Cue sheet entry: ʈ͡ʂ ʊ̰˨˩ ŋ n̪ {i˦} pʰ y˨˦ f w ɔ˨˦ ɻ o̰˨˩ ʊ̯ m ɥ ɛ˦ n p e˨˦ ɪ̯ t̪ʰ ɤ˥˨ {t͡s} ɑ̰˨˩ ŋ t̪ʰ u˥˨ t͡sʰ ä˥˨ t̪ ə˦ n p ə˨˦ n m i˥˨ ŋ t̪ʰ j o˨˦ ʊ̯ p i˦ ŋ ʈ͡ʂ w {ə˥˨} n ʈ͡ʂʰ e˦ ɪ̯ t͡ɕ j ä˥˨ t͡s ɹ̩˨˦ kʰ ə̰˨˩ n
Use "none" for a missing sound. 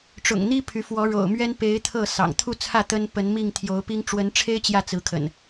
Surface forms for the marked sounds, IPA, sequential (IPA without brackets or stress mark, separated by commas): i˦, s, ə˨˦